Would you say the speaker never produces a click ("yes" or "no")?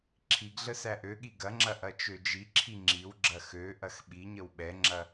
no